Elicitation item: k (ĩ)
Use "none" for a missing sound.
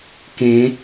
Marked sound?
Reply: ẽ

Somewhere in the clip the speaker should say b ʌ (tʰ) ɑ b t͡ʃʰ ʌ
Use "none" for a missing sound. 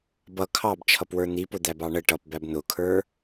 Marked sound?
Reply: kʰ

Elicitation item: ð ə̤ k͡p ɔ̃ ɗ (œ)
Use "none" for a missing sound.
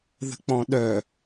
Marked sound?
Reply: œ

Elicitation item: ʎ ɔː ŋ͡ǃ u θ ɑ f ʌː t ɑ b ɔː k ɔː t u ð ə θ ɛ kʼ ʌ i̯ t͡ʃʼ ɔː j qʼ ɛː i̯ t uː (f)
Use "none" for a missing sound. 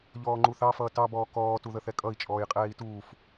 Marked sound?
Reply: f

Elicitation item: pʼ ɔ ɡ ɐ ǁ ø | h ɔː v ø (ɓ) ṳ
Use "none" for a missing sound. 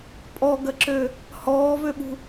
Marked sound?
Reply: ɓ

